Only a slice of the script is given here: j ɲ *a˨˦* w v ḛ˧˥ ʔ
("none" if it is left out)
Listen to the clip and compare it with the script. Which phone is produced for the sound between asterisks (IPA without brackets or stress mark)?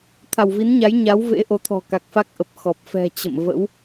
a˨˦